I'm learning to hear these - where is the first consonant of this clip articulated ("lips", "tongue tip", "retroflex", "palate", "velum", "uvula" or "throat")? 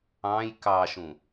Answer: palate